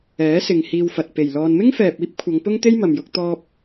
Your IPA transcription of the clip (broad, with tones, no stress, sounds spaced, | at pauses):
ɛː˨˥ s ɪ˨ ŋ h iː˧ w f ɐ˨ t̚ p e˨˩ j l ɔː˧ n m ɪ˥ ŋ f ɛː˨ p̚ iː˥ p̚ kʷʰ ɐ˨˧ ŋ p ʊ˥ ŋ t̪ e˥ j m ɐ˨ m j ʊ˧ k̚ t̪ ɔː˧ p̚